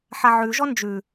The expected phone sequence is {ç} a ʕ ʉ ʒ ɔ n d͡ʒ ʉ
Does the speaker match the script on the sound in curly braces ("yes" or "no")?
no